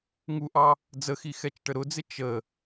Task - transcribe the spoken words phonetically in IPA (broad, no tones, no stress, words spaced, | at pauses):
ŋuʔɑ | d͡zəxi xɛt͡ʃʈəɾʊd͡zɪ t͡ʃə